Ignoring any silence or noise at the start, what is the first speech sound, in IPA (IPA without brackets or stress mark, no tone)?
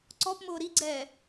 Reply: ǀ